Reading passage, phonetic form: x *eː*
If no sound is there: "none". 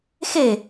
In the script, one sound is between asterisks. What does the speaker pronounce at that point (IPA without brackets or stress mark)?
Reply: e